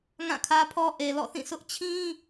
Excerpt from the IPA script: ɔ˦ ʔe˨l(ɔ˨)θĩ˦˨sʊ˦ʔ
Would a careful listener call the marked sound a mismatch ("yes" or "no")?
yes